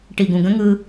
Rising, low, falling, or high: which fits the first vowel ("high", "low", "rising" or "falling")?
low